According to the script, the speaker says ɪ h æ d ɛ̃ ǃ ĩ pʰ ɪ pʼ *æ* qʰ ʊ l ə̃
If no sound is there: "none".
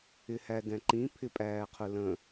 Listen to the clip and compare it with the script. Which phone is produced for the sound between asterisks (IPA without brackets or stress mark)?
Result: æː